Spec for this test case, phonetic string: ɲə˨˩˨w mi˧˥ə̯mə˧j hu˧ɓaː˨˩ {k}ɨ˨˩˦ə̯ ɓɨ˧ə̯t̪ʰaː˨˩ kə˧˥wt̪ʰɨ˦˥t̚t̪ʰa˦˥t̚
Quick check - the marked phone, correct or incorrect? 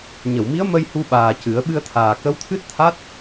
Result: incorrect